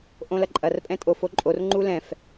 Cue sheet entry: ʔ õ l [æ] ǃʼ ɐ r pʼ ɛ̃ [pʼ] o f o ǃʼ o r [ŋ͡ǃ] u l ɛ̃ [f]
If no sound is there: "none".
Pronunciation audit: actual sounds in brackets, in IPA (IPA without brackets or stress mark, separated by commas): ɐ, tʼ, ŋ͡ǃ, f